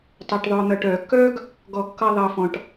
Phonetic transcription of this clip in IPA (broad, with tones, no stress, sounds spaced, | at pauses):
tˤ ɜ˨ ʈ ðˤ œː˨ n̪ ʌ˨ ʈ œː˨ kː œː˦ ɡ | ɡ ɔ˨ kː ʌ˨ ðˤ ʌː˨ f ɔ̃˨ ʈ